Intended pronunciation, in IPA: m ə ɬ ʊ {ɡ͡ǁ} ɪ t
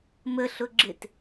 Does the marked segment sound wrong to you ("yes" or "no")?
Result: no